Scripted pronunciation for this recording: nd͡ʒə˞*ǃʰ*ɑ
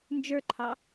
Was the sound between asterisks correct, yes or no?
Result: yes